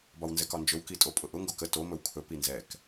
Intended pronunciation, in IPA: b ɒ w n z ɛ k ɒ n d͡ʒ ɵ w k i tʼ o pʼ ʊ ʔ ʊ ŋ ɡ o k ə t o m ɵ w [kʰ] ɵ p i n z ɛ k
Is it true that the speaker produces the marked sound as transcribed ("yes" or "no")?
yes